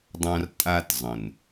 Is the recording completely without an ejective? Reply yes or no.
no